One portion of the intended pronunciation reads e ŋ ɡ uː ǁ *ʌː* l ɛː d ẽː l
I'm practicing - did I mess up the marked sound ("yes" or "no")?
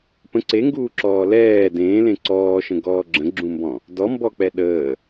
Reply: yes